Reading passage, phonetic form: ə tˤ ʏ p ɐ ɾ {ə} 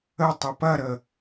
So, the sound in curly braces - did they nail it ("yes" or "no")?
yes